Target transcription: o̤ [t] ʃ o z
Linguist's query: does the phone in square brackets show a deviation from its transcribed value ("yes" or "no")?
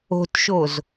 no